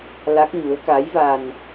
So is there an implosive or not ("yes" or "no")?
no